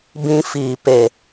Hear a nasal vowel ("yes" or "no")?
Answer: yes